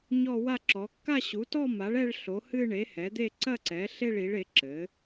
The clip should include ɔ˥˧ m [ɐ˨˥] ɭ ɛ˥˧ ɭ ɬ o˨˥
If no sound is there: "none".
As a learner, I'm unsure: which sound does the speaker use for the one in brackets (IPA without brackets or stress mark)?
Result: a˨˥